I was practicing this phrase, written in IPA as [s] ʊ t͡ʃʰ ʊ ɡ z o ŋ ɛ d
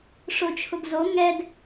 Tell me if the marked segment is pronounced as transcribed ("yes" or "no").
no